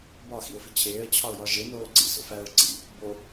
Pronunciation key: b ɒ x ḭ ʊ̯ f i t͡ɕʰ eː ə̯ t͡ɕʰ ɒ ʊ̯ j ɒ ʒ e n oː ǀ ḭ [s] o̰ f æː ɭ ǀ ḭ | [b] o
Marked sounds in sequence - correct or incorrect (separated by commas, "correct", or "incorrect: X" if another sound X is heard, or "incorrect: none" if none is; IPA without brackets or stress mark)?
correct, correct